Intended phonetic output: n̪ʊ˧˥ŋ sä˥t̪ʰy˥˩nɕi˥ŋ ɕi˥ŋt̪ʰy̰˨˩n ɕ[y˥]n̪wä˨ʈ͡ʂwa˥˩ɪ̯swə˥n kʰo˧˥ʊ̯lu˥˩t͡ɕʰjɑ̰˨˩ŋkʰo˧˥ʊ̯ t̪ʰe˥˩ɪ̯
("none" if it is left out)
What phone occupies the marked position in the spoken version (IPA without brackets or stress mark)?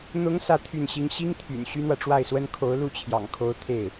y˥